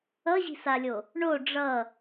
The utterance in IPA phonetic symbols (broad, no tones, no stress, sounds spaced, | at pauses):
ʌ ʑ i̤ s a lʲ o | ɳ o ɖ͡ʐ ʌ